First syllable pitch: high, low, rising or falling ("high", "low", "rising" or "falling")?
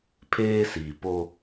high